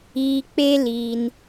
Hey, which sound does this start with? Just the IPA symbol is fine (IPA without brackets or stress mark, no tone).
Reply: iː